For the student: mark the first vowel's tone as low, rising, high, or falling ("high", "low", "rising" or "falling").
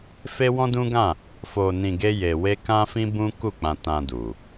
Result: high